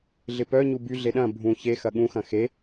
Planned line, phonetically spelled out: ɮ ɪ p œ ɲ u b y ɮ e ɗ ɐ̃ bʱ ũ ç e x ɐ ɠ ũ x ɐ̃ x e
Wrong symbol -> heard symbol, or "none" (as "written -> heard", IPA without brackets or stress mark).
none